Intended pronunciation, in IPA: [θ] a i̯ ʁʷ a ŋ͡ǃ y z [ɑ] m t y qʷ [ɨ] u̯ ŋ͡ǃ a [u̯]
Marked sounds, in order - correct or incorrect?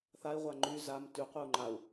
correct, incorrect: a, correct, correct

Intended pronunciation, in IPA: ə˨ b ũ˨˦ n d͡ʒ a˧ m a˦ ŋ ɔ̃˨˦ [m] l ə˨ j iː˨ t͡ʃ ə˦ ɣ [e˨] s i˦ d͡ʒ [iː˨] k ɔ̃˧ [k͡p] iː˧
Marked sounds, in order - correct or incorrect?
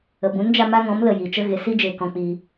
correct, correct, incorrect: eː˨, correct

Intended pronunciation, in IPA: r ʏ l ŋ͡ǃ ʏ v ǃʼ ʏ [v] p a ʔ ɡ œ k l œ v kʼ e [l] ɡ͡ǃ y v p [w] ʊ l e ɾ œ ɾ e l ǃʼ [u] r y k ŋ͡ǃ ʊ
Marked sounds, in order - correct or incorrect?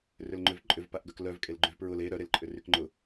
correct, correct, incorrect: ɹ, incorrect: ʏ

